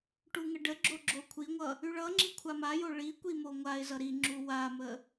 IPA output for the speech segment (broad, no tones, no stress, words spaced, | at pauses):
ʈuŋəɖəɡ͡ǁo ɡ͡ǁokʷʰiŋʷʌ | yɭʌŋ͡ǁi kʷʰamajo ɭikʷi moŋʷaɪ̯zʌ ɾiŋ͡ǁu wamə